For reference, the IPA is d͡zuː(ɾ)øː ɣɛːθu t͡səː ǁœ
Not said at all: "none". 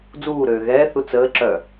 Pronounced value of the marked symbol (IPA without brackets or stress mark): ɾ